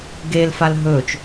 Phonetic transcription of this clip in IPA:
ɡ e l f a l ɦ ɵː t͡ʃ

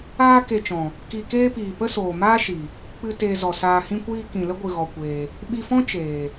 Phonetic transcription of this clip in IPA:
aː˦ k e˧ t͡ʃ ɔ̃˨ | k i˧ k eː˦ p iː˨ p ə˦ s oː˨ m aː˦ ʃ i˨ | k͡p ɨ˧ t eː˧ z ɔ˨ s aː˧ h ĩ˧ kʷ iː˧ k ĩ˨ l ə˦ ɡʷ ɨ˨ ɣ ɔ˧ kʷ eː˧ | ɓ i˧ f ɔ̃˦ t͡ʃ eː˨

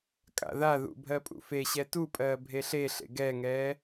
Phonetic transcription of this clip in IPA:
kʼ a̰ ð a ð ṵ bʱ ɜ pʼ ṵ f e ɕ ɛ t u pʼ ɜː bʱ e ɬ e ɬ ḛ ɡ ɛ ŋ ɛː

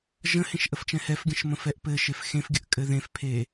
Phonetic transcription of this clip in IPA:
ʒ ə̃ h ẽ ʃ ʔ ə f t͡ʃ ɛ̃ h ɛ f ɡʲ ə̃ ʃ m ə̃ f ɛ ʔ p ɘ ʃ e f x ẽ f ɡʲ ə ʔ kʼ ɘ ð ẽ f pʰ e

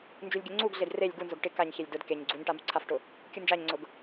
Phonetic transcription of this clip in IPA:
n d͡ʒ u lʲ ɡʲ ʊ ŋ͡ǀ u ɡ ɮ e d r e lʲ ɡ u n z ʊ ɡ ʈ ɪ k a ɲ ç e lʲ d ʊ d k e ɲ ɡ͡ǀ u ɲ ʈ a m u ǀʰ a f ʈ ʊ | kʲ u n d͡ʒ a ɲ ŋ͡ǀ ʊ ɡ

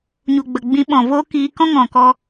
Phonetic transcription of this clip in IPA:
ɲ u˨ ɡ͡b ə˨ ɡ͡b ĩ˨˦ ɓ ɔ̃˨ v oː˦ k iː˧ k ɔ̃˦ ŋ ɔ̃˨ k ɔ˧

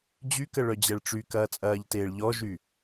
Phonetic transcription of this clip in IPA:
d͡ʑ y k ə ɭ œ d͡ʑ ɛ ɭ ʈ͡ʂ y k ɐː t͡sʼ ɐː ʎ t eː ɭ ʎ ɔ ʒ y

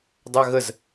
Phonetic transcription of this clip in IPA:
dˤ a ɣ ə z

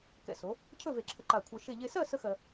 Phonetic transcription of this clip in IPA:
k ɛ̰˧˩ s o˩˧ | cʰ ɵ˥˧ v e˧˩ ǁʰ ə˧ ǃ a˧˩ kʷʰ ɜ˧ ʃ e˥˧ ʎ e˧ s ɜ˥˧ s ə˥ x ɜ˧

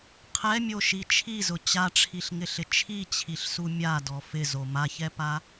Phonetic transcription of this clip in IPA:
qʰ ɛ mʲ o ʃ i t͡ʃʰ i z ʊ t͡ɕ a ʈ͡ʂʰ i ɬ ŋ ɪ ɬ ɪ t͡ʃʰ i t͡ɕʰ i ɬ s u mʲ a d ɔ f ɪ z o m a ç ɛ p a

